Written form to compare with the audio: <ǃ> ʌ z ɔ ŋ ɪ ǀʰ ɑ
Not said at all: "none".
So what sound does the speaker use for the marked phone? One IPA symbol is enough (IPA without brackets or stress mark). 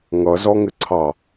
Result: ŋ